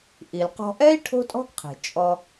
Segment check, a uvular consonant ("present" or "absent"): present